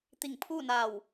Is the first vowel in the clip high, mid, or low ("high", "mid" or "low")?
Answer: high